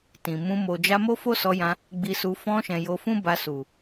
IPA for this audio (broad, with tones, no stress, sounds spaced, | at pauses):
t ĩ˨ m ũ˧ m o˨ d͡ʒ a˧ m o˦ f o˦ s ɔ˧ j ã˧ | ɡ͡b i˧ s u˧ f ɔ̃˧ ʃ ɛ̃˨ j o˧ f ũ˦ b a˧ s u˨